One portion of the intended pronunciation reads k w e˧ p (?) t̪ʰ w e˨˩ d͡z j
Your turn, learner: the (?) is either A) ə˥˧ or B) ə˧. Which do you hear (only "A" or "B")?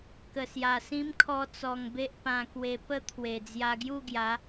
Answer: A